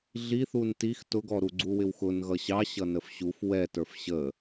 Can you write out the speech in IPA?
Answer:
ɮ i θ u n t i x t ʊ ɡ ɔ ɾ u ɡ͡ǀ u w ɪ w x ʊ n ɣ ʌ ɕ ɑ ɕ ʌ n ə f ɕ u f w ɛ t ə˞ f ɕ ə

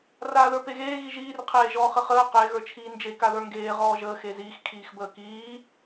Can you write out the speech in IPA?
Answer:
r aː ð ə˞ p e ɣ eː ɣ i ʒ iː r qʰ eː ʒ ɔː χ ə χ əː q e ɣ ə˞ t͡ʃʰ iː n d͡ʒ e k a ð ə˞ ŋ ɡ eː ʁ ɔː ʒ əː x e z iː x kʰ iː x b əː k iː

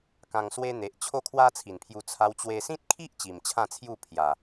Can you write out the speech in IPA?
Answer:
k ã˧ ŋ s w e˦ n̪ e˨ ʔ t͡ɕʰ o˦ kʰ w a˦ t͡sʰ i˨˩ n pʰ j u˧ t͡sʰ a˧ w t͡ɕ w e˧ s ĩ˦ t̚ kʰ i˦ ʔ t͡ɕ i˨˩ m t͡ɕʰ ã˥˧ t͡sʰ j u˥˧ pʰ j a˨˩

